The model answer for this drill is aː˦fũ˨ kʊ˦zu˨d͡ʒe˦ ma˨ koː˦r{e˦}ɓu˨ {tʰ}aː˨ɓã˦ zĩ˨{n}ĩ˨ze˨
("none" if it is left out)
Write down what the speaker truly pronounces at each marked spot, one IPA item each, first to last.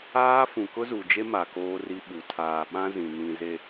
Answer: i˦, tʰ, n

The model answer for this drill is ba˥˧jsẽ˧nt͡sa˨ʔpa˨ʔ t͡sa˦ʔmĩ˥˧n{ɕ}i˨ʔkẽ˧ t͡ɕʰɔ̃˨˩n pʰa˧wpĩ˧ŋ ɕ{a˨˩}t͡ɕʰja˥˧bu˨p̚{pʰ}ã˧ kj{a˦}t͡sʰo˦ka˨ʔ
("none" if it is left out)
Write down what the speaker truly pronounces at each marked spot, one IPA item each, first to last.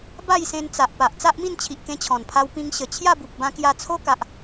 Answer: t͡ɕʰ, ə˨˩, b, a˧

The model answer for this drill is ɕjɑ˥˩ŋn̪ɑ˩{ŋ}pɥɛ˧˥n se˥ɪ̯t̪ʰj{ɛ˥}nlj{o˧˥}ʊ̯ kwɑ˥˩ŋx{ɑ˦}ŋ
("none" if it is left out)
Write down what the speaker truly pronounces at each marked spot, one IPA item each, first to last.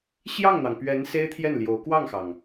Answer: ŋ, ɛ˥˩, o˧˥, ɑ˩

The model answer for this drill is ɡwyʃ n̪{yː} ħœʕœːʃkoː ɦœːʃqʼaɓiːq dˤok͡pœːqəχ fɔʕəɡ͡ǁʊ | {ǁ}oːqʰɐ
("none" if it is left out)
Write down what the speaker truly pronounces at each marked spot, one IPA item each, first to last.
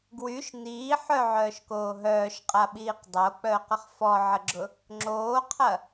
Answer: iː, ŋ͡ǁ

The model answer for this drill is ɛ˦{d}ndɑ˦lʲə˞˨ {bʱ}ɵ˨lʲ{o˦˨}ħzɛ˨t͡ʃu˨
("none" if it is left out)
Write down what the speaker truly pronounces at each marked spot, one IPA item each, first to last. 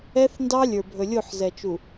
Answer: θ, bʱ, o˦˨

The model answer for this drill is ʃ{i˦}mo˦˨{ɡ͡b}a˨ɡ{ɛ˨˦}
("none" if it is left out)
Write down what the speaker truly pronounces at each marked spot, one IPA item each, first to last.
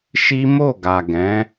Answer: i˦, ɡ, ɛ̃˨˦

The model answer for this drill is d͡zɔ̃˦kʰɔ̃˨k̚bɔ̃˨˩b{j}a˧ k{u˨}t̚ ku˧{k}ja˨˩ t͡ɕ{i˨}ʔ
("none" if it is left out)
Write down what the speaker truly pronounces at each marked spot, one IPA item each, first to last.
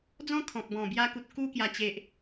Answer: j, u˨, k, e˨

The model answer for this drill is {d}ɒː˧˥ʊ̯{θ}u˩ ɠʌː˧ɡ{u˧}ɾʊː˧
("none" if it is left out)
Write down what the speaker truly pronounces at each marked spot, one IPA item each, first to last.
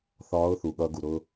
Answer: θ, θ, u˩

